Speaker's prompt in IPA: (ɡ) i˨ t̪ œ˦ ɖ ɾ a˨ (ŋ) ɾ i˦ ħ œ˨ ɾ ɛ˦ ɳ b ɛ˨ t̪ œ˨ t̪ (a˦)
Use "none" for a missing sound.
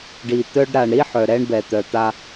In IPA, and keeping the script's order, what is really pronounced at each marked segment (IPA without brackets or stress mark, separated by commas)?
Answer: ɖ, ɳ, a˦